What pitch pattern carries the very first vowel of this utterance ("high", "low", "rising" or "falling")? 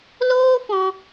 high